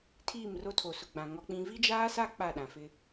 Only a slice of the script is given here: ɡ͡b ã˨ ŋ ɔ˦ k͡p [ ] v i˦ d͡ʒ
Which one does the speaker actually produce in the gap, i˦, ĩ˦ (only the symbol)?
ĩ˦